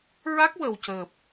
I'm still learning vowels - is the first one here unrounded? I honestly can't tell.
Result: yes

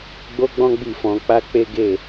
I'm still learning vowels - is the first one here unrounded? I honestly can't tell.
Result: no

